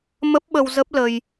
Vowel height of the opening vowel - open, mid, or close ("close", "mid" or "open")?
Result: mid